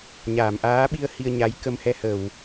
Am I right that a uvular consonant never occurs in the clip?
yes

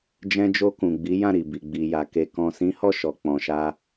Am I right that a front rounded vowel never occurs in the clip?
yes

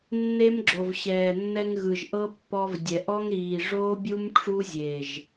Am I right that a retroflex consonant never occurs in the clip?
no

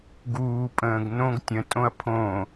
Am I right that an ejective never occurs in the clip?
no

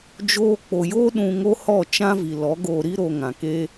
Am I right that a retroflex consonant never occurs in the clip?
yes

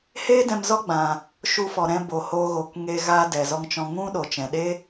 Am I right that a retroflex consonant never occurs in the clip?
yes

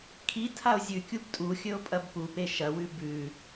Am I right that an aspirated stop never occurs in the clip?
no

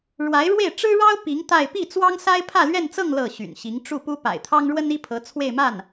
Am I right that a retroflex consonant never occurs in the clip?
no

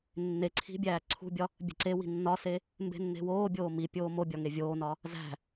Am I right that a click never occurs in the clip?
no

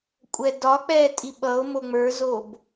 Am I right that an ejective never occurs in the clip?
no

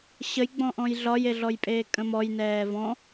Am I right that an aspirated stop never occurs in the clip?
yes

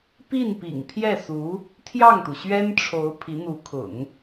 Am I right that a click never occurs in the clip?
yes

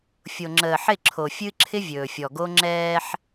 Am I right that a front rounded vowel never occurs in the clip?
yes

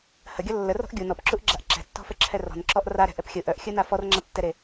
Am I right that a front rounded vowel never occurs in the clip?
no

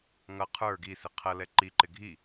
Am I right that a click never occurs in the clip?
no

